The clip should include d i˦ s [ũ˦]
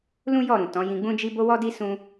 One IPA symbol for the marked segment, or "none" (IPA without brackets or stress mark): ũ˦